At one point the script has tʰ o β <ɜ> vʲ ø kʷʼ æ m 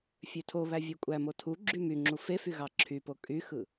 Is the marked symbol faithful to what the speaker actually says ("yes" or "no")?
no